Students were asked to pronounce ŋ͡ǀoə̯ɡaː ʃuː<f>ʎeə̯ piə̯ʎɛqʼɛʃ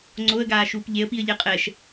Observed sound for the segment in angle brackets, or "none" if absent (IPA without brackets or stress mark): p